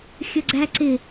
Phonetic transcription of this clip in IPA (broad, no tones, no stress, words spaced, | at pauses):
xʲəɡ͡ǀæǀɪ